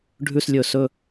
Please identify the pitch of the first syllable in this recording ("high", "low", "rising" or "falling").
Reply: falling